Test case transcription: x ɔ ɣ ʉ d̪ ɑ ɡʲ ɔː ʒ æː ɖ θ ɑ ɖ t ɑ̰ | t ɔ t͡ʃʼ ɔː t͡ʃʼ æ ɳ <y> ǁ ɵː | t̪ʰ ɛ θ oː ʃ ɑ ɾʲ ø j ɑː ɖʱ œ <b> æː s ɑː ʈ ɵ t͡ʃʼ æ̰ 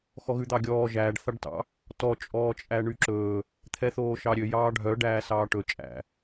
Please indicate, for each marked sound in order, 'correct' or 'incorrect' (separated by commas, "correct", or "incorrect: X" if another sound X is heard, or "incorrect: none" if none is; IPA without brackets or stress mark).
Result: correct, incorrect: ɖ